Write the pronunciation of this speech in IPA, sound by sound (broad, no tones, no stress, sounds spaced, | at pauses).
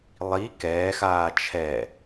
lˠ i k ɛː x aː t͡ʃʰ ɛ